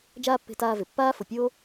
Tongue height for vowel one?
low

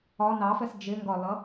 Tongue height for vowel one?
low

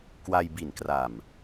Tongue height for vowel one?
low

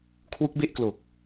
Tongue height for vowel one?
high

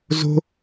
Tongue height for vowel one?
mid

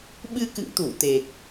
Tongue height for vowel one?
high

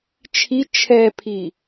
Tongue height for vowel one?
high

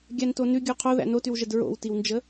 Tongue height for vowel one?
low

